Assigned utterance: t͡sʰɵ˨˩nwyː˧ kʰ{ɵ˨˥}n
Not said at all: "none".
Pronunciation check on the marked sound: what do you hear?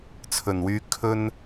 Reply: ɵ˥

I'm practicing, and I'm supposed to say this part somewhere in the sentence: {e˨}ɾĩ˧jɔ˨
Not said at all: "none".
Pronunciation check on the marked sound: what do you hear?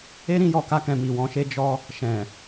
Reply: e˦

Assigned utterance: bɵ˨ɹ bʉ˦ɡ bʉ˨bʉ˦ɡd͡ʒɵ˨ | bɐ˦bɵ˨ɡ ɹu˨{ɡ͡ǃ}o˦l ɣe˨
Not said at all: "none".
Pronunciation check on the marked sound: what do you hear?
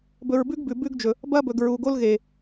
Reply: ɡ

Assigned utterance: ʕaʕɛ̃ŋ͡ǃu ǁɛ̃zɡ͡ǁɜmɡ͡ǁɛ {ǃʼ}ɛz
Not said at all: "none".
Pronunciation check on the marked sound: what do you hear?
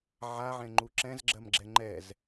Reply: ŋ͡ǃ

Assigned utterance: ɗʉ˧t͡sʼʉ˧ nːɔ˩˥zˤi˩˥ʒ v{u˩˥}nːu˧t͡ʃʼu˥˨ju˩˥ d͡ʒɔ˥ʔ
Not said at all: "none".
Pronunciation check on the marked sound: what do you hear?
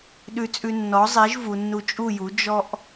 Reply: u˩˧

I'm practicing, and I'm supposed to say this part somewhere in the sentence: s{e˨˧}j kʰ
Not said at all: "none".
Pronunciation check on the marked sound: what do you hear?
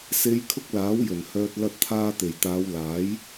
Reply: e˨˧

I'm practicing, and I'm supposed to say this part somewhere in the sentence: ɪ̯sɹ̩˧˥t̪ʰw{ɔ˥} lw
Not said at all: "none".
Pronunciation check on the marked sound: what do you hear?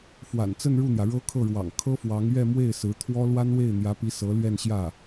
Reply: ɔ˥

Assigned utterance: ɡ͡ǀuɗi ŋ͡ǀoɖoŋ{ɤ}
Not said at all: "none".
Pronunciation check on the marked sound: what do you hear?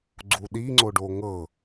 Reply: ɤ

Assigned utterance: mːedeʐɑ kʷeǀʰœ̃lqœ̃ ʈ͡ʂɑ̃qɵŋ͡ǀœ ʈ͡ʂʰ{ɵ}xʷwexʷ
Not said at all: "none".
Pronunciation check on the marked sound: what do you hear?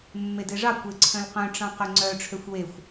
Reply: ø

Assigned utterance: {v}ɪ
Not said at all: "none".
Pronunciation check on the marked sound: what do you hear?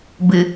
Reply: b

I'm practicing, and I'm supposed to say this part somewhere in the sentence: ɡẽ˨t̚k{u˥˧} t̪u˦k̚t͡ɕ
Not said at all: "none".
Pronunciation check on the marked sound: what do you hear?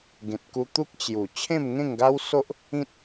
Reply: u˧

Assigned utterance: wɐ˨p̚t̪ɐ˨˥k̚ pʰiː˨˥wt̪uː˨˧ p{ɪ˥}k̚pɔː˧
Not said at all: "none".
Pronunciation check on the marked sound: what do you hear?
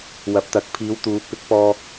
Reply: ɪ˨˥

